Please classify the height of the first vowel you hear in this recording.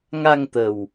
low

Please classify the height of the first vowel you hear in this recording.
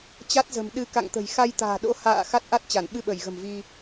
low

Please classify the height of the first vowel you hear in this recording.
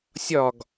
low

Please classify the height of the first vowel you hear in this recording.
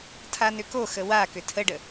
low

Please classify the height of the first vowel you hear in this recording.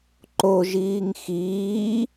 mid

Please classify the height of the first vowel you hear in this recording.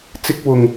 high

